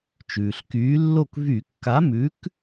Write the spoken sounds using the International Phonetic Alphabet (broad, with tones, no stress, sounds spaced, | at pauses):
t͡ʃ ʉː˩ ɬ k yː˨˥ lː o˥˩ k v y˧˩˧ kː a˨˥ m ʉ˨˥ k